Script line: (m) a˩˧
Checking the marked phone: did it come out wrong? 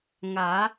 yes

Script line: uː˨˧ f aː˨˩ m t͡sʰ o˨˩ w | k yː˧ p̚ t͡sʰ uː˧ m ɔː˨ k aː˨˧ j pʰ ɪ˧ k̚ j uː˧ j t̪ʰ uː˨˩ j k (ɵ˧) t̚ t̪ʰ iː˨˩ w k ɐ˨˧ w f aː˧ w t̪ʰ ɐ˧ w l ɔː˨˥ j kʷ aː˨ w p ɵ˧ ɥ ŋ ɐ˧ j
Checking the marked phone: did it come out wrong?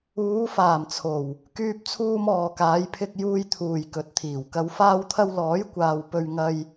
yes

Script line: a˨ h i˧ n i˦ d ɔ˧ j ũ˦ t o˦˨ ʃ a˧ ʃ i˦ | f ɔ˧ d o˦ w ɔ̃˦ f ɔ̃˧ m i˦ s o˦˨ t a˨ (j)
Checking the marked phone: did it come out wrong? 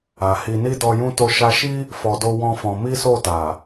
yes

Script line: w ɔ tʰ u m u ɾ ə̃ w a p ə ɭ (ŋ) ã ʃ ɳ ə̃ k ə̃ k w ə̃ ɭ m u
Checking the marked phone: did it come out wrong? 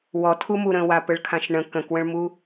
yes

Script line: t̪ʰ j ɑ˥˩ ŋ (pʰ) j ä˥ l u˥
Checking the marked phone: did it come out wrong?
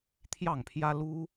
no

